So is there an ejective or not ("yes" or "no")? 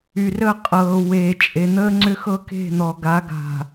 yes